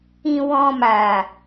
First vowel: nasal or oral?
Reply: nasal